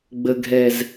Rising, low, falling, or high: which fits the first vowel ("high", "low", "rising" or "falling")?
low